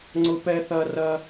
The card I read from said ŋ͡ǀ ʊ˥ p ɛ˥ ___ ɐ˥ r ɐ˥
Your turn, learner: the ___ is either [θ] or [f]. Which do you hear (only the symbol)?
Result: θ